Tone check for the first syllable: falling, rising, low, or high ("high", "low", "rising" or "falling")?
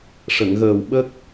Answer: low